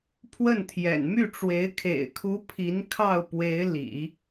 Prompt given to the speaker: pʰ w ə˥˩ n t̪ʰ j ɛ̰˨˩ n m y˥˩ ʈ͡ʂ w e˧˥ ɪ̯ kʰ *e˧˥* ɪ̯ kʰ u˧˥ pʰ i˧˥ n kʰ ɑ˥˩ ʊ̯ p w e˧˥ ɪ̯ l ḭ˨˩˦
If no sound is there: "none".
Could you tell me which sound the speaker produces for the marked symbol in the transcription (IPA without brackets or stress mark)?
ḛ˨˩